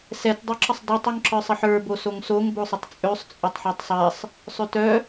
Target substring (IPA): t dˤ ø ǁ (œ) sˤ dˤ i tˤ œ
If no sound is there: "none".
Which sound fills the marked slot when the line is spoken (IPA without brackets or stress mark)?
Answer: ə